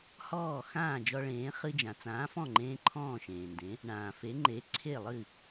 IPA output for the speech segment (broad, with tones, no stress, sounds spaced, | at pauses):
h ɔː˥˩ x ãː˥˩ d͡ʒ ɔ˧ ɭ ẽː˩˥ χ ɨ˧ d͡ʒ ã˩ t͡s ãː˩˥ f ɔ̃˥˩ ŋ͡ǃ ẽː˧ ǃʰ ɔ̃ː˥˩ ʃ ẽː˩ n d ẽ˩˥ | ɳ ãː˩ f e˩˥ ŋ͡ǃ e˩˥ ǀʰ e˥˩ lˠ ɨ˥˩